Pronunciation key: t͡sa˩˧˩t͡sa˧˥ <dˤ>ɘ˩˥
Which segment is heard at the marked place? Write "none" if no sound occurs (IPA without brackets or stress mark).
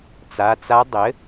dˤ